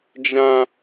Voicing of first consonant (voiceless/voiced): voiced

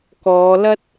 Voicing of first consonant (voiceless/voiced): voiceless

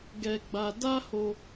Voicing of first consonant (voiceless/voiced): voiced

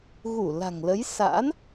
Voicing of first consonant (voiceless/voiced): voiced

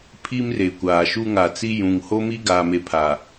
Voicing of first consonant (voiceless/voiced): voiceless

